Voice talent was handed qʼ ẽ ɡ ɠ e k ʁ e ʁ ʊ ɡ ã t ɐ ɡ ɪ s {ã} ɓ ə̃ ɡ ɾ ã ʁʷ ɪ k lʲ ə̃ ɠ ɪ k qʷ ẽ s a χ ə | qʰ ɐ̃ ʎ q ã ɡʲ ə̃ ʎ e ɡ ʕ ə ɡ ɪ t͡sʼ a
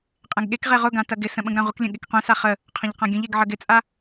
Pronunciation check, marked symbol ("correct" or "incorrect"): incorrect